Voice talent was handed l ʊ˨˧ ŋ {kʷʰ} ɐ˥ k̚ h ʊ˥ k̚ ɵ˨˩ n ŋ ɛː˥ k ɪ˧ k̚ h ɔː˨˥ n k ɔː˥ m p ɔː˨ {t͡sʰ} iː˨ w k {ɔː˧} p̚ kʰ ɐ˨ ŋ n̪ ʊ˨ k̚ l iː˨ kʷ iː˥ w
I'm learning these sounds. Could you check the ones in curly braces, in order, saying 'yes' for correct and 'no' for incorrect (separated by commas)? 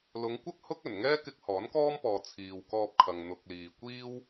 no, yes, yes